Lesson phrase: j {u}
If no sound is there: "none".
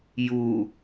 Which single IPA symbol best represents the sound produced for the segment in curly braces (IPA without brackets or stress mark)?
u